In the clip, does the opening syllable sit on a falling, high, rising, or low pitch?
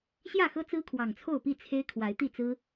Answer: falling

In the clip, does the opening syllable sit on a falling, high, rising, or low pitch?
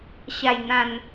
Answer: low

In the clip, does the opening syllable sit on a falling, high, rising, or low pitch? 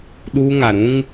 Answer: high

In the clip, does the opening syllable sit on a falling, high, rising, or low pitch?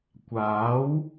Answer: rising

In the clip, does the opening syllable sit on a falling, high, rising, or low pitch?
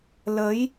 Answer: rising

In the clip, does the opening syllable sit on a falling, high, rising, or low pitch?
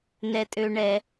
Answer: low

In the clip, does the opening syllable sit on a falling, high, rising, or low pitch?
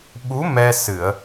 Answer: rising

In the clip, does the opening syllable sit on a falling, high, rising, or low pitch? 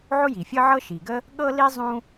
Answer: high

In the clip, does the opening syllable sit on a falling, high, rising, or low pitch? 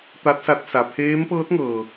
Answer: rising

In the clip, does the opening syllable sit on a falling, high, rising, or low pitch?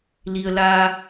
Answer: low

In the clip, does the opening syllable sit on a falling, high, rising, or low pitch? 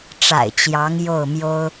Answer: low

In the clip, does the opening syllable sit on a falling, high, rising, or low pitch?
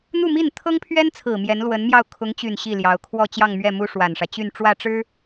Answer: falling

